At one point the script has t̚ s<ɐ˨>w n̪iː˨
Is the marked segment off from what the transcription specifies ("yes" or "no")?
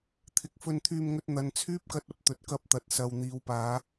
no